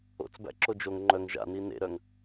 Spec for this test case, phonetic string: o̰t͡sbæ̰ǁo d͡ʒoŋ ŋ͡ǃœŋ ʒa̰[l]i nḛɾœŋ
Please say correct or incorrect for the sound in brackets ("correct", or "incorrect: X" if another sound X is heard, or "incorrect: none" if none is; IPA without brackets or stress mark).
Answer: incorrect: n